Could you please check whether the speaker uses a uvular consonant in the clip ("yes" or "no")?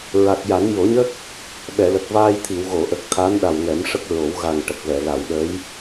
no